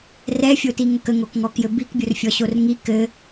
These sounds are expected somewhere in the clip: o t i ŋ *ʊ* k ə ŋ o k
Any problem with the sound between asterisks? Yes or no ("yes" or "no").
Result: yes